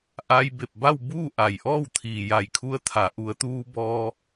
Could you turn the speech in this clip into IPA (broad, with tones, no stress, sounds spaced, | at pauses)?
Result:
ʔ a˧ j b e˧˩ p̚ b a˥˨ w b uː˥˨ ʔ a˩ j ʔ ɔː˥˨ w t̪ʰ iː˩ j a˧˩ j kʰ u˧ ə̯ t̪ʰ a˩˧ ʔ u˩˧ ə̯ t̪ uː˧ b ɔː˧